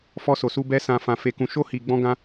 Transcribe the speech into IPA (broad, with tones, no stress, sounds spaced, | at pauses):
f ɔ˧ s o˨ s u˧ b ɛ˧ s ã˨ f ã˨ f e˧ k ũ˧ ʃ o˦ h i˧ ɡ͡b ɔ̃˦ ɡ ã˦